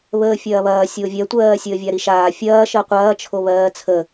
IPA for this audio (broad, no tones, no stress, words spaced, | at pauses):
βəːfʲɐːβɐː sʲovʲɜtʷɜː sʲəːvʲaɾiʃaː fʲɐː ʃɜqʷɐː t͡ʃʰoβɜːt͡sʰə